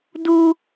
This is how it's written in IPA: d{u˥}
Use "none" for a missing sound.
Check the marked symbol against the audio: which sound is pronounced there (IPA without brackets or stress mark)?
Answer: u˥